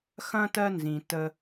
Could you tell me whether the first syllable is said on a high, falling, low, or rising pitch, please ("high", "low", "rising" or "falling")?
high